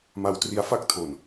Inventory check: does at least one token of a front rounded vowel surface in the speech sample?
no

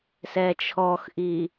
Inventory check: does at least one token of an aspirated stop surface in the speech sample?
yes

